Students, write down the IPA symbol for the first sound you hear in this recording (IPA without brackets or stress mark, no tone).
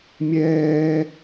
mʲ